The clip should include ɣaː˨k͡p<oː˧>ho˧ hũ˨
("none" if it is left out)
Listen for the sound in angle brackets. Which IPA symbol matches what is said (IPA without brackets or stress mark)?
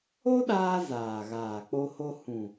o˧